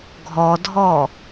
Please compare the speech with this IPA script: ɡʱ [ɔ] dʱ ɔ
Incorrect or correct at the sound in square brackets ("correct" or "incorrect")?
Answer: correct